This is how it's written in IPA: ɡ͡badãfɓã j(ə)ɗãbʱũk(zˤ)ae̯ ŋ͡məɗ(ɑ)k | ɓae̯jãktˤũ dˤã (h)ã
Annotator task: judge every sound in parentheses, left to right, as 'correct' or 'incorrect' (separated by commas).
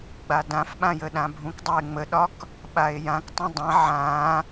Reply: correct, incorrect, incorrect, incorrect